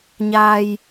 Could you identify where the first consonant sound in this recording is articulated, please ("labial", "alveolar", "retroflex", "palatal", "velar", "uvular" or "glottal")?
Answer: palatal